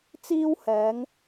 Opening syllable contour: high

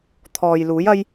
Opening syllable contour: low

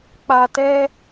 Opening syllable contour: low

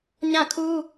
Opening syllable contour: falling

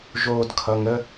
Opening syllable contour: low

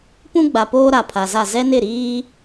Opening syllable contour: high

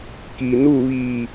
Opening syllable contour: low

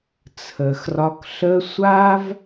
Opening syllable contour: low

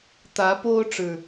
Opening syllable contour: rising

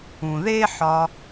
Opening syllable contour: low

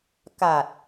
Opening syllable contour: low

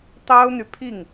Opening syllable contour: high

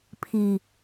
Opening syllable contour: low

